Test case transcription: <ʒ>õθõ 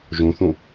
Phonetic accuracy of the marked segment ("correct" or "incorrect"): correct